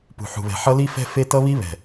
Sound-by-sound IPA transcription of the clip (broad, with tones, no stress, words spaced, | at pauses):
pṳ˨ħṳ˨βɛ̤˨ ħʌ˦li˦fɛ̤˦ fe˦tʌ˦βi˦βɛ̤˨